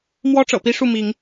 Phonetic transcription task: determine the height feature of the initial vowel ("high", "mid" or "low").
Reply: mid